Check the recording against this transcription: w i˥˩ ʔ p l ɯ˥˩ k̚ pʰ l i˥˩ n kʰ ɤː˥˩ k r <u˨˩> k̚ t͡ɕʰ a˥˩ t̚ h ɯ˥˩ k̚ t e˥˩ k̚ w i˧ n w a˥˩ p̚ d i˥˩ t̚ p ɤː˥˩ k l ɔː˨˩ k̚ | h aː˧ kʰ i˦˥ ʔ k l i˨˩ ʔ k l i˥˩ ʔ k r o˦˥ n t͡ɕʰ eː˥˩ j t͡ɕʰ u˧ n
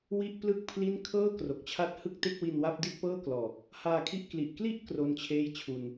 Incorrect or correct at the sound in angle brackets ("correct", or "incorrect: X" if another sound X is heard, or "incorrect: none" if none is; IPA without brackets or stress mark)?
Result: incorrect: o˨˩